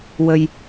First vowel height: mid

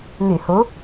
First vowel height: high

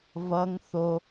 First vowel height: mid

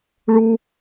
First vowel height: high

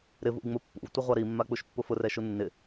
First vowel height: high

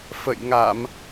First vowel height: mid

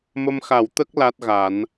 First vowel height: mid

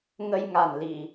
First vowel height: mid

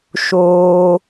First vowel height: mid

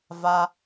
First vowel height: low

